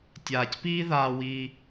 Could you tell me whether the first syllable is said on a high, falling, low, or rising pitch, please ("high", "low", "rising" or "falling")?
low